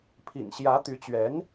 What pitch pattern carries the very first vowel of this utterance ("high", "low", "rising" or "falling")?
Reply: low